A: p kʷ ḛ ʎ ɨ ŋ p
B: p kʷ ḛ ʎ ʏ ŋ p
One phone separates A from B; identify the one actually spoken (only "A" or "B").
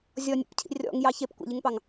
A